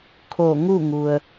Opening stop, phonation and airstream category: aspirated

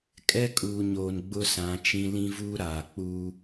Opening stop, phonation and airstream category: ejective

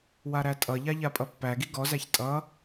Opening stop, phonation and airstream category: ejective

